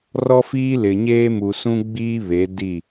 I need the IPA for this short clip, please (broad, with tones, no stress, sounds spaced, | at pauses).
r ɔ˦ f iː˦ l ɪ˨ ɲ eː˦ m u˨ s ũ˦ ɡ͡b iː˦ β e˨˦ d i˦˨